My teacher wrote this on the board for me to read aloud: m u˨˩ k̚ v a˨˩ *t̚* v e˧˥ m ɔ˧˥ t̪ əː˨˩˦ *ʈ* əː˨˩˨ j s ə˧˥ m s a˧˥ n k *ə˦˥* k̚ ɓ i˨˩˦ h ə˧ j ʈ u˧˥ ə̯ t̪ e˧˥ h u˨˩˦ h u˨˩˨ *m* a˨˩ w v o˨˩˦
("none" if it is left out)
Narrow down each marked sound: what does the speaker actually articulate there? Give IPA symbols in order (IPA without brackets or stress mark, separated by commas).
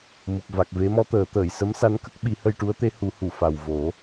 k̚, t̪, ə˦˥, f